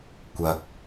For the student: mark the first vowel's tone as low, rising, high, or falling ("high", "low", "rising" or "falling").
low